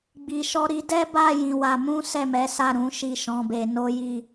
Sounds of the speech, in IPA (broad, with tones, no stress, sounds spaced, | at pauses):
ɡ͡b i˨ ʃ ɔ˧ ɾ i˧ d ɛ˦ b a˦˨ j ĩ˧ w a˧ m ũ˦ s ɛ˦˨ m ɛ˨˦ s a˦˨ ɾ ũ˨˦ ʃ i˦˨ ʃ ɔ̃˨˦ b e˧ n o˦ j i˦˨